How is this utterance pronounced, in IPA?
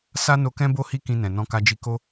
sa˦no˧kɛ̃˦bo˦ hi˦kĩ˧nɛ̃˨ nɔ̃˧ka˧d͡ʒi˧ko˦

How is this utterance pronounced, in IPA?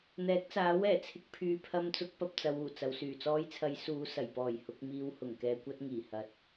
n̪ɛː˨˥k̚t͡saː˨˥wɛː˨˩ t͡sʰɪ˨˥k̚pʰyː˨˧ pʰɐ˧mt͡sʊ˨˥k̚pɐ˨p̚ t͡sɐ˨˧wuː˨˩t͡sɐ˨w syː˨˩t͡sɔː˧jt͡sʰɐ˨˧j suː˨˧sɐ˨˩jpɔː˨˩j hʊ˧k̚miː˧w hʊ˨˩ŋkɛː˧kʷɐ˥t̚ ŋiː˨˩hɐ˨t̚

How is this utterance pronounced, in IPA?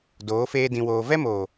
doː˨˦feː˦dĩ˧woː˧ vɛ˦moː˨

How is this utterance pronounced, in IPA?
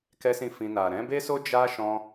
kɛ˦sĩ˦˨fĩ˧ na˨ɾɛ̃˨˦be˦so˦ d͡ʒa˦ ʃɔ̃˦

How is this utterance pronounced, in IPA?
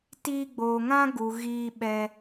tiː˧ɡ͡boː˨ŋã˦ɡu˨ ɣiː˧ɓɛ˧

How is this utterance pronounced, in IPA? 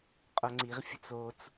qʼoŋ͡ǀiʁfʲə̤t͡s ot͡s

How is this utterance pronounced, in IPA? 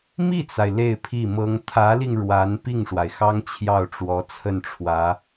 mi˥˩t͡sa˩ɪ̯ le˥˧ɪ̯pʰi˥˩mɤ˥ŋ t̪ʰä˧˥li˧ŋ ɻwa˧˥n pi˥˩ŋʂwa˩ɪ̯xɑ˥ŋ t͡ɕʰjɑ˥˩ʊ̯ʈ͡ʂwɔ˧˥ t͡sʰə˥˩nʈ͡ʂʰwä˧˥

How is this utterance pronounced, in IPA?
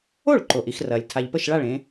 o˥˩ɭǃo˩ʔ i˥˩xrɐː˩lʲ tʰa˩ʎpə˥˩ʃɭa˥˩ɭ ẽ˨˦

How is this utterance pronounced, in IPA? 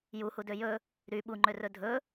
juhudø jɵ | ɾy ɓuŋ͡ǃørɵ dʱɵ

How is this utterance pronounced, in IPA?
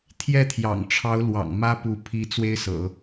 t̪ʰjɛ˥˩t̪ʰjɑ̰˨˩ŋʈ͡ʂʰɑ˧˥ʊ̯lwɑ̰˨˩ŋ mä˥pu˧˥ pʰi˧˥ t͡swe˥ɪ̯sɤ̰˨˩˦

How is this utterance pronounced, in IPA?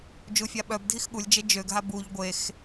d͡ʒufʲaɓœb dʱixɠulʲd͡ʒe d͡ʒøɡɦa buʎ ɡʷex

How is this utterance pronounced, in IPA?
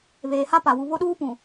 βeː˨ha˦pa˨ wu˨βo˦ɗuː˦pũ˨

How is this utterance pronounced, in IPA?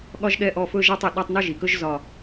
ɠɒ˦ʒɠɛ˦˨ʔɔ˦˨ fɵ˦ʒɛ˦tˤ ɵ˩ ɗɒ˦˨tˤnɔ˦ʒi˩kɵ˦ʒ zɒ˦˨

